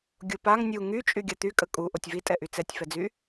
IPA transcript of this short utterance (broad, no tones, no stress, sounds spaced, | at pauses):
ɡʲ o p a ŋ nʲ u ŋ y t͡ʃʼ y ɡʲ a t̪ y kʼ ə kʼ u ʔ o tʲ v i tʼ ɛ ʔ y t͡s ɛ tʲ f ɛ d͡z y